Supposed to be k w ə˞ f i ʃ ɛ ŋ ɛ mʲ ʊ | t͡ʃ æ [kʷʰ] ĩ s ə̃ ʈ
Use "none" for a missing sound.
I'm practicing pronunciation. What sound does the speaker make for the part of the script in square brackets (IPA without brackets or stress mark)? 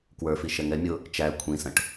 kʷʰ